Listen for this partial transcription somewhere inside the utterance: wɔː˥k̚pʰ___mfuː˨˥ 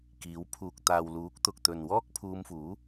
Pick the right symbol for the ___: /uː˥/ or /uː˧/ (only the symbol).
uː˧